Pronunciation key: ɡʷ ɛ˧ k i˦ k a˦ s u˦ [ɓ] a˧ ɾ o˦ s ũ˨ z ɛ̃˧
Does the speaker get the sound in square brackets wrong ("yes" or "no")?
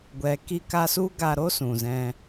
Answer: yes